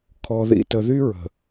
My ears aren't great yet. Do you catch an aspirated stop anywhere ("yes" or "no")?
yes